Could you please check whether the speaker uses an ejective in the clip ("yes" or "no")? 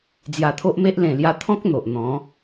no